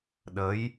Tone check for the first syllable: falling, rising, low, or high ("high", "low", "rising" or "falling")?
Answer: rising